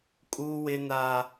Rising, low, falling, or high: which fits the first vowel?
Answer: high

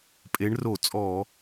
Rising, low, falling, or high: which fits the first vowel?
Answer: rising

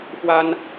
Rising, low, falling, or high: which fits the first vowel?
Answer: high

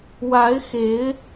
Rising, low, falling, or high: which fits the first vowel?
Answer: rising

